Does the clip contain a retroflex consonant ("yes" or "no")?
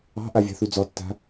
no